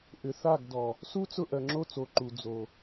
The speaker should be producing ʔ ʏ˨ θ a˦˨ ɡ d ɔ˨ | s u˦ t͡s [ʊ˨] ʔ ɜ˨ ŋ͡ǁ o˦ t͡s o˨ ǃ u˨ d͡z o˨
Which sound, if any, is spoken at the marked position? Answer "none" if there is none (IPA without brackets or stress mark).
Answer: ʊ˦˨